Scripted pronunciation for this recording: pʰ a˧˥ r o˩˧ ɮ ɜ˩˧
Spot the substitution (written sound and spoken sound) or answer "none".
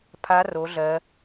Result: none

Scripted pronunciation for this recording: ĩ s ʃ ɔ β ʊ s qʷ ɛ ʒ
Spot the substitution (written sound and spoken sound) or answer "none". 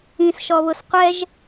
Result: none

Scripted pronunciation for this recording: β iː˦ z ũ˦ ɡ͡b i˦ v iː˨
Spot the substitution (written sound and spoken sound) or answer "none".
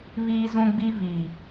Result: none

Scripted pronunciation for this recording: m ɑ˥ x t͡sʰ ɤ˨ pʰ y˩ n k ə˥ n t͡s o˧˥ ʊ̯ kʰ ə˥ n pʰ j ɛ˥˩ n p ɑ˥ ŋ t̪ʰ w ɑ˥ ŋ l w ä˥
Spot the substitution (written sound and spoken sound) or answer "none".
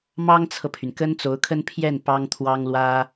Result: x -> ŋ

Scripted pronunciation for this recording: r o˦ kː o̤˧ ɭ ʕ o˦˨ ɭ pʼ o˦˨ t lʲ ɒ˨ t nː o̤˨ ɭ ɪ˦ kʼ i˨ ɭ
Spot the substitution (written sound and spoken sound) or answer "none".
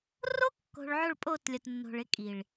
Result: none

